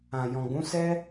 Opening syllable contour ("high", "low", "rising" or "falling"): low